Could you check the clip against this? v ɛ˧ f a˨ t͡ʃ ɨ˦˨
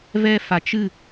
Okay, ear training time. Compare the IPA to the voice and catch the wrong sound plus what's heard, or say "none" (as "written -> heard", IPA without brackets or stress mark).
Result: none